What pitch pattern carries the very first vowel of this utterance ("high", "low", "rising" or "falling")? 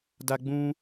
high